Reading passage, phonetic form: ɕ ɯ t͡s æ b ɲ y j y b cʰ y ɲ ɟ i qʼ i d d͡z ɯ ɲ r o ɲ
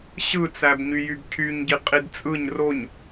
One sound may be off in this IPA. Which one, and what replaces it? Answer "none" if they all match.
d͡z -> t͡sʼ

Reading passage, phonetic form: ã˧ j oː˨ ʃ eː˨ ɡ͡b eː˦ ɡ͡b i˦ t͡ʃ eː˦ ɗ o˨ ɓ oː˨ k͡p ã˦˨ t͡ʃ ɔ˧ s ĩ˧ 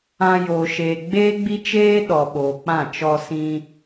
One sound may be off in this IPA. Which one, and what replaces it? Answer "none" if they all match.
o˨ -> ɔ˨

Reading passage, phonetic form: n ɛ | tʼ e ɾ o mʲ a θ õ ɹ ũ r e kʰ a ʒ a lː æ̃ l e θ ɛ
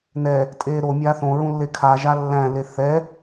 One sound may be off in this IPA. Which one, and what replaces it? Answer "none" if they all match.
r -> lː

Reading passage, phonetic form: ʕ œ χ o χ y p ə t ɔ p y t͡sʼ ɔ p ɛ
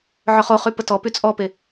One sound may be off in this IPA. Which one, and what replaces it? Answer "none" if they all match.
ɛ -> e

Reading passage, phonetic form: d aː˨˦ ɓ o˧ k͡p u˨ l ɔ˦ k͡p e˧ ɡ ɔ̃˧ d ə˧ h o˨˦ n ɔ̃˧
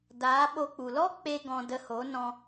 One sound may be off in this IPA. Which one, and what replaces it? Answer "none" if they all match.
none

